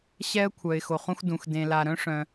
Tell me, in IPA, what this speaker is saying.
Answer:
ɕ ɛ˥ ə̯ kʷʰ œ˨ ɪ̯ x o˨ χ ũ˥ x d ũ˨ x d ẽ˨ l a˨ ɾ œ̃˥ ʂ œ̃˨

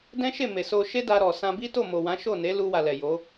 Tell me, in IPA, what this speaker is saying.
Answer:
d ɛ̃˦ ʃ e˦˨ m e˨ s o˧ ʃ e˦ d a˧ ɾ ɔ˨ s ã˧ b i˦ t o˦˨ m o˨ w ã˨˦ ʃ o˦˨ n e˨˦ l u˧ w a˨ l ɛ˨ j o˨˦

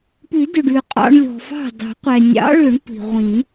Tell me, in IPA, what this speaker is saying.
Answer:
p ʉ˨˩˦ d ʏ˩ ɖ ʉ˩ qʼ ɑ̰˧ ɳ lʲ ɔ̤˩ f ɑ̤˥˩ d ɑ̤˨˩˦ qʷ ɛ˩ nʲ ɑ̰˨˥ ɭ ʏ˨˩˦ ɳ tʷ i̤˩ ʁʷ ĩ˨˩˦

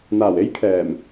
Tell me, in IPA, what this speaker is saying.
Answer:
n̪ aː˨˩ w e˥ j kʰ ɛː˨˩ m

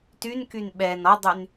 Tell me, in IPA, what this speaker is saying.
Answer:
t y n k y n ɓ ɛ n ɔ dˤ y n

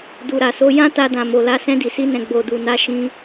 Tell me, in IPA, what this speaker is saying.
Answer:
d u˨ ɾ a˨ s o˨˦ j ã˦ t a˧ d ã˨ m o˨ l a˧ s ɛ̃˧ d i˨ s i˧ n ɛ̃˨ ɡ͡b o˨ d u˨ n a˧ ʃ ĩ˦

